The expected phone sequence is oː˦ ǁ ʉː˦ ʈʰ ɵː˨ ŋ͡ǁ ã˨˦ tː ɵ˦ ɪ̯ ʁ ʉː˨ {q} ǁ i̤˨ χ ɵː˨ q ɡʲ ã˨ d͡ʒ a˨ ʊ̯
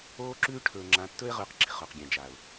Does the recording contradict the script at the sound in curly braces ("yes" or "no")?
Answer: no